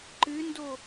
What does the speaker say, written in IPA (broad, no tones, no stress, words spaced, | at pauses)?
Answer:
ǃɨndo